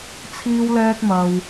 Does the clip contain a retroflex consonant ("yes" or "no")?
no